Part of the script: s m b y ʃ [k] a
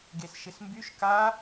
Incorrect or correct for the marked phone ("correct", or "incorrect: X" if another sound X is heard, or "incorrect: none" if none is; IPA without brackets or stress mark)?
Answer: correct